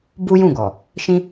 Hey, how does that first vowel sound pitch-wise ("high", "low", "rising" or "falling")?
high